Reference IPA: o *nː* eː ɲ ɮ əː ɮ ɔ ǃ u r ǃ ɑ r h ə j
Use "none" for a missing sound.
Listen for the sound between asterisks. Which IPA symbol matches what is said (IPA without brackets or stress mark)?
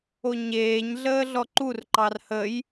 ɲ